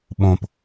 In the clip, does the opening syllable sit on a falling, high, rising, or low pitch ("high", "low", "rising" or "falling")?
low